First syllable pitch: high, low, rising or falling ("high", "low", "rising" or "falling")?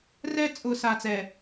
high